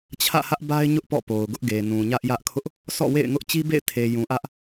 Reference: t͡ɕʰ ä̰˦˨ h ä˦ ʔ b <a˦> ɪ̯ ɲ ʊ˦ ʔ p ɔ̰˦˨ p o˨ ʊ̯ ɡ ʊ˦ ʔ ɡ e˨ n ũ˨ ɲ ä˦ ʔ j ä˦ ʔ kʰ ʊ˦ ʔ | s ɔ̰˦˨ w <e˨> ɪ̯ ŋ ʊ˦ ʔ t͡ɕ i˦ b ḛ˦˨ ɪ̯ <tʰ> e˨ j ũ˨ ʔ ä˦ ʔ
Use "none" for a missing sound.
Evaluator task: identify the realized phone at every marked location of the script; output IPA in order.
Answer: a˦, ḛ˦˨, tʰ

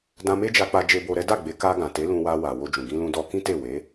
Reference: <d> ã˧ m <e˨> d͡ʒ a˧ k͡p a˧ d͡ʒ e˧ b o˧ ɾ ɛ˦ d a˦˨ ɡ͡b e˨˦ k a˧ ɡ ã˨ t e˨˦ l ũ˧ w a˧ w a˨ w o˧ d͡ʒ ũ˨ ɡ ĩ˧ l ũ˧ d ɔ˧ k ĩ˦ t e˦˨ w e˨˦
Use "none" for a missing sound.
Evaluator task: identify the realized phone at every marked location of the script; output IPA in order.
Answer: d, e˦

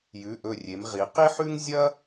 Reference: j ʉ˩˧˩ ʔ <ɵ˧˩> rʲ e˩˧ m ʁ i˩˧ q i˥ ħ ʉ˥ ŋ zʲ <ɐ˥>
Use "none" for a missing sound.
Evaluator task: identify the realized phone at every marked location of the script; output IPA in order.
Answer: ɵ˧˩, ɐ˥

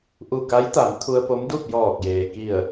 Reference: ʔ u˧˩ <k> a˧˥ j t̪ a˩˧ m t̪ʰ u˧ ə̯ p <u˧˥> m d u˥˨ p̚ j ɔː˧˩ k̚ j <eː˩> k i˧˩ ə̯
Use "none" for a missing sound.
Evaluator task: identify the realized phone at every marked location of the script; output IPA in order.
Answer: k, o˧˥, eː˩

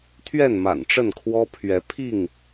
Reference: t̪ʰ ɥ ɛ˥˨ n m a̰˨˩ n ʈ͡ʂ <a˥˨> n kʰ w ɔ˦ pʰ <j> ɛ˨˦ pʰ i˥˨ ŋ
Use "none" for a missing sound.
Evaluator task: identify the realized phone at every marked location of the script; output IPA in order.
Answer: ə˥˨, ɥ

